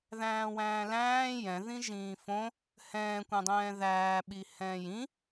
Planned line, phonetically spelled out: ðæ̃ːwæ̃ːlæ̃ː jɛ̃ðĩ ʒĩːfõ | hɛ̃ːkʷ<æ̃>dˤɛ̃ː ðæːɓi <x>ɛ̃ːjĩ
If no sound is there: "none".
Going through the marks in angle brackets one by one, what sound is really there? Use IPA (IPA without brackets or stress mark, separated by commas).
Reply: æ̃, h